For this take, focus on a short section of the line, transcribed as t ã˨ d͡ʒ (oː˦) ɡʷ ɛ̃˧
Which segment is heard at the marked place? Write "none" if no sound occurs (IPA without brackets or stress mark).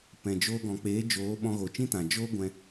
oː˦